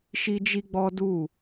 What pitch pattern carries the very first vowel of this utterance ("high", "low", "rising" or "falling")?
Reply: high